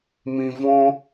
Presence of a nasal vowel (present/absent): present